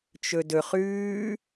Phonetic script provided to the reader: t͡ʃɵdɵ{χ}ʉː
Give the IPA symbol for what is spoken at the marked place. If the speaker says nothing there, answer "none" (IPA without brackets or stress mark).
χ